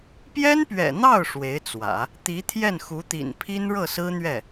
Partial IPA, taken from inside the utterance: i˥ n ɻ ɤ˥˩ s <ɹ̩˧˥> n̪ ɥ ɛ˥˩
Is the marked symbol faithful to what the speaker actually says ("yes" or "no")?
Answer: no